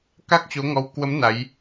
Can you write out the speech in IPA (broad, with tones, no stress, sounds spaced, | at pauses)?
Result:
k a˦˥ k̚ t͡ɕ o˨˦ ŋ ɔ˨˦ w k w ə˨˦ m n a˨˦ j